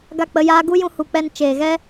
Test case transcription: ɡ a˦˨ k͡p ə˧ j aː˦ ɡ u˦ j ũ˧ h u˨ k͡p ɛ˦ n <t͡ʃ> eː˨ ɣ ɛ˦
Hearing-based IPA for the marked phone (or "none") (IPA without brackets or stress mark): t͡ʃ